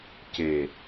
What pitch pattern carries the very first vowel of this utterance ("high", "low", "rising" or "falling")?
low